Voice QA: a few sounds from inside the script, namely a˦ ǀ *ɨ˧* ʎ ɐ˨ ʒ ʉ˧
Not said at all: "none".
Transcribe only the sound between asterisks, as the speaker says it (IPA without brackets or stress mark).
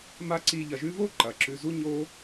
i˧